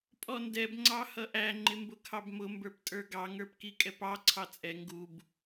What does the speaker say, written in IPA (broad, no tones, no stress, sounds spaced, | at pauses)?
pʼ ɔ n d ɛ b ŋ͡ǀ ɑ h ʌ ʔ æ ŋ͡ǃ ɪ m b ʊ kʰ ɑ b m ʊ m b ə˞ p tʼ ə˞ ɡ ɑ ŋ ə˞ p k i kʼ ɛ p ɑ ǀʰ ɑ t͡sʼ ɛ ŋ ɡ u b